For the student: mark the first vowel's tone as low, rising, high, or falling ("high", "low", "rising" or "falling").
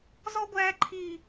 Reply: high